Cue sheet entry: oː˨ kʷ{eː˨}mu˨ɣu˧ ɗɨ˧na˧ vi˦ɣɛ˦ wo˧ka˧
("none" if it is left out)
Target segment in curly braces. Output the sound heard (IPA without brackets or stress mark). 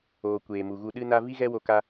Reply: eː˨